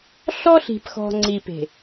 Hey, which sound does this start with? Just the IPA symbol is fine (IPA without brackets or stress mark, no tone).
ɬ